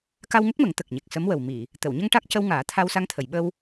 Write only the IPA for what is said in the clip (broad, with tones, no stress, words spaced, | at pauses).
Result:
ka˧wŋə˦˥k̚mə˨˩˦ŋ t̪ə˨˩k̚ɲe˨˩k̚sə˧˥mwə˨˩w mi˨˩˨ | t̪ə˨˩˨wɲə˧ŋ ʈa˦˥k̚cə˧wŋaː˨˩˦ t̪ʰa˧wsa˧ŋt̪ʰə˨˩˨jɓə˧w